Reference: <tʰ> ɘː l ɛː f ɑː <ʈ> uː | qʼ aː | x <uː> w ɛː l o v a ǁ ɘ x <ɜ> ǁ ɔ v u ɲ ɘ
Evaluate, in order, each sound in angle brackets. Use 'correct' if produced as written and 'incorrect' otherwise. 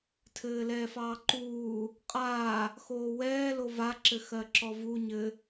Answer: correct, incorrect, incorrect, correct

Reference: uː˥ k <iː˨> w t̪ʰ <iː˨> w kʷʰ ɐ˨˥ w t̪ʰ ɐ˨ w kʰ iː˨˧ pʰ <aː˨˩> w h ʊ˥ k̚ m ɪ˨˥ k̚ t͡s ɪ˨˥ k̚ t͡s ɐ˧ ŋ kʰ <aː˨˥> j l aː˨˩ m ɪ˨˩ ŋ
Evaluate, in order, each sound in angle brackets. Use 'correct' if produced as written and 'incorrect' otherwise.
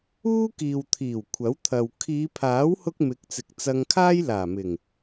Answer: correct, incorrect, incorrect, incorrect

